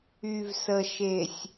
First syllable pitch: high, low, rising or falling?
low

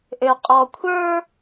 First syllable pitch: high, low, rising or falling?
low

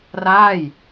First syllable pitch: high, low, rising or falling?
falling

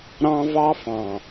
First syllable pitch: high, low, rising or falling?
high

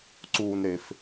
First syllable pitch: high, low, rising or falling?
low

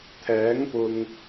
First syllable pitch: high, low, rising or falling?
rising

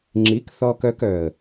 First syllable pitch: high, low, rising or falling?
rising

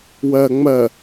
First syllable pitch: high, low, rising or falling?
low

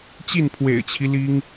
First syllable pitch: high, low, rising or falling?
falling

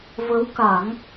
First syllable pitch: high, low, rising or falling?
rising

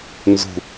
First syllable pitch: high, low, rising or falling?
low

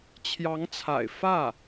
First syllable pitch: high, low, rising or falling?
rising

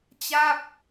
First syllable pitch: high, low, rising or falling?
falling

